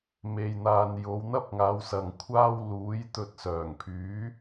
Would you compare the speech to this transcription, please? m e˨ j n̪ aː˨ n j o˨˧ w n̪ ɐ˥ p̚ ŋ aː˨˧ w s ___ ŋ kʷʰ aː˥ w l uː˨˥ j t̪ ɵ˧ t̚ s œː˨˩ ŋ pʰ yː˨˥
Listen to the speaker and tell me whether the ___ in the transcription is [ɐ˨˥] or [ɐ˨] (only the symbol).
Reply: ɐ˨